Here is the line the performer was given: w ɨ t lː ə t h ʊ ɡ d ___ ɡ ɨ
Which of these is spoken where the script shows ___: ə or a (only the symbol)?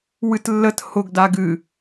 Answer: a